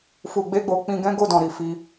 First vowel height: high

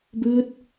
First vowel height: high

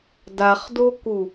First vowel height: low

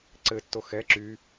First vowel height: mid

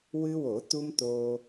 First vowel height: high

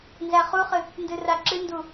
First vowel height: low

